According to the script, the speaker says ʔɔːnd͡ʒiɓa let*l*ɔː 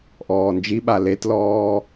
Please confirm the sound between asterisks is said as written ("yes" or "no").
yes